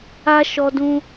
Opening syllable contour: high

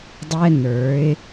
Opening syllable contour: high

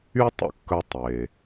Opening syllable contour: high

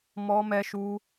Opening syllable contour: high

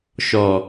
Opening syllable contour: low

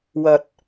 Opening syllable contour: low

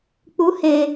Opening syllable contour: rising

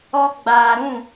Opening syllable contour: high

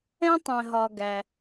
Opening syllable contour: high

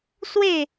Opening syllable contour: falling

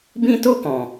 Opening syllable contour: high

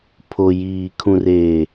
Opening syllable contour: low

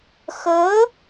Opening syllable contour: rising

